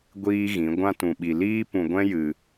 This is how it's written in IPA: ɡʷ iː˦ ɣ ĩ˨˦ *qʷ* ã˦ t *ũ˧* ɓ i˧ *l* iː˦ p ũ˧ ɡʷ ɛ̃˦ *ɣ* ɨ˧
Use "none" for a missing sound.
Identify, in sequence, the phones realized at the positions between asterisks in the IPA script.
ɡʷ, ũ˧, l, j

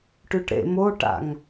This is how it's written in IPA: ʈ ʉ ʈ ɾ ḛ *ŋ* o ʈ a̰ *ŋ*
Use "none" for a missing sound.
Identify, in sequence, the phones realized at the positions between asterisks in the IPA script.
m, ŋ

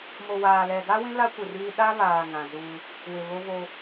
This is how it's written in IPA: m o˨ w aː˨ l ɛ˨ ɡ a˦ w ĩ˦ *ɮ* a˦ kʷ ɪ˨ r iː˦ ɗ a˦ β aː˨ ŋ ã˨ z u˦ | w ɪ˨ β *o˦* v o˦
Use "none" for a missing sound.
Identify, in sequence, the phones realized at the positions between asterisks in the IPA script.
l, o˦

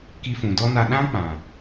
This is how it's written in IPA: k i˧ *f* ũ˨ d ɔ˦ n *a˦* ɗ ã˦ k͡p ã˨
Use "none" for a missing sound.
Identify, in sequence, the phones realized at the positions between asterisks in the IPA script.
f, a˧

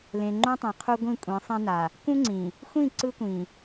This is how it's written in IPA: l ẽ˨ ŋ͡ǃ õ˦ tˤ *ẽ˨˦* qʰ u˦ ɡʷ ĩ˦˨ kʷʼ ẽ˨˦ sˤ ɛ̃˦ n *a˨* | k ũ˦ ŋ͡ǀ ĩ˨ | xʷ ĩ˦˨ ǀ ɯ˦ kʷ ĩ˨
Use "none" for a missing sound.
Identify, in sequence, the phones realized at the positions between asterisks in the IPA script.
ẽ˨, a˨

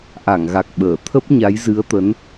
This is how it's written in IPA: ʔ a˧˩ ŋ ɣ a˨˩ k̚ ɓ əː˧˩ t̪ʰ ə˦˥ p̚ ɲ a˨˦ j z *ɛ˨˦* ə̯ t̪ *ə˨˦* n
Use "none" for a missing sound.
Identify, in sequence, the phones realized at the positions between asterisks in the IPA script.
ɨ˨˦, ə˨˦

